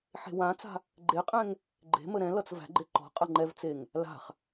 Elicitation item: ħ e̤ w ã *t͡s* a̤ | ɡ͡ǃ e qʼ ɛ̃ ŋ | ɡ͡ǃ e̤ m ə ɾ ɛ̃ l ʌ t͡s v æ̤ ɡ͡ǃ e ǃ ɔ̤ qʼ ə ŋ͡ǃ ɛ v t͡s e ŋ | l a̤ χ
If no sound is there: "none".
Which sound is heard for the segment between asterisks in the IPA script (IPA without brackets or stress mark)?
t͡s